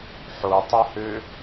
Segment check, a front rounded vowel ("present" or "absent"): present